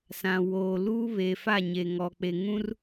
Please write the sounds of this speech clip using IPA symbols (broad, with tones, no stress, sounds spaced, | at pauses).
s ã˨ w oː˨ l uː˦ β eː˨ f a˦˨ ɲ e˨ ŋ ɔ˨ k͡p e˨ ŋ ũ˦ r